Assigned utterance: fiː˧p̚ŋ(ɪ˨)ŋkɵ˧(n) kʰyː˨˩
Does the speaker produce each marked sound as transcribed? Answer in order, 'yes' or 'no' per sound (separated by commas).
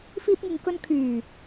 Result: yes, yes